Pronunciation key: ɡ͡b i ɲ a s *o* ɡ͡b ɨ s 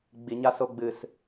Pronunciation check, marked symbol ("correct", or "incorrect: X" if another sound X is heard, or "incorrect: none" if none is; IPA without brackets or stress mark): correct